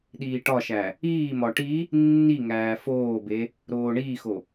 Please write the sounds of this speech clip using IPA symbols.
ɗ iː ʈ ɒ ʃ æ | iː m ɒ ʈ i | nː i ŋ æː f oː b e | ɾ oː ɳ iː x o

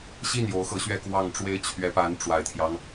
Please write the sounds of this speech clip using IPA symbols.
ɕ i˥˩ n j o˧˥ ʊ̯ x ɤ˧˥ ɕ ɥ ɛ˥˧ k w ɑ˥˩ ŋ ʈ͡ʂ w e˥ ɪ̯ t͡ɕʰ ɥ ɛ˧˥ p a˧˥ n ʈ͡ʂ w a˨˩ ɪ̯ t̪ʰ j ɑ˦ ŋ

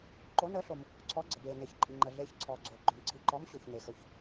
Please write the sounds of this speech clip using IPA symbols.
ǃ o˨˦ n əː˨˦ ɬ o˩ m | ǀʰ ɔ˨˦ ɡ͡ǀ ə˩ b eː˩ n e˩ ç ǃʼ i˩ ŋ͡ǃ ə˩ ɮ eː˨˦ ç ǀʰ ɔː˩ ɡ͡ǀ oː˩ ɡ͡ǃ ɵ˩ m ǀʰ i˩ ǃ ɔː˨˦ m ɕ o˩ ç n e˩ x ɵ˩ ç

